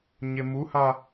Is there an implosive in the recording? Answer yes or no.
no